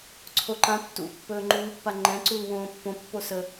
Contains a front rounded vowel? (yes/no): no